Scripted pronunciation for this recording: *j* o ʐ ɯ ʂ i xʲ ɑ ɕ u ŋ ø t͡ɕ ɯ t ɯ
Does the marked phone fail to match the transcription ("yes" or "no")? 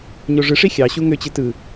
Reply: yes